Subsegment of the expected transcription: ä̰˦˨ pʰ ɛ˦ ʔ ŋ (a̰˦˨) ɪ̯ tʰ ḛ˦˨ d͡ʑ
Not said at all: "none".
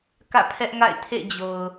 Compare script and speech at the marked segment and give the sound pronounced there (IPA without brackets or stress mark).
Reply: a̰˦˨